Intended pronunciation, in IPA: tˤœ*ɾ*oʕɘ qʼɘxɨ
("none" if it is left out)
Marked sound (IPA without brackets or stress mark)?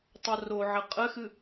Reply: r